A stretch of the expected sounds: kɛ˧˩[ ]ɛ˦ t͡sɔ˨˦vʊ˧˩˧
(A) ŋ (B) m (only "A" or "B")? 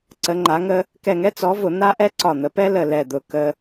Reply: A